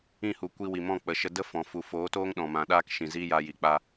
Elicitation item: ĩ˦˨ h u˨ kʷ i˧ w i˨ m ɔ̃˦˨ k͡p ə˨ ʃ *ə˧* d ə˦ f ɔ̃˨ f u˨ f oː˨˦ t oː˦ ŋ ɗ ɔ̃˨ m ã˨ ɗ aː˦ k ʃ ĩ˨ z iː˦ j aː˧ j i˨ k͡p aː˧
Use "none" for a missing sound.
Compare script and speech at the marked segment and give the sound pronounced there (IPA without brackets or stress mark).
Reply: ə˧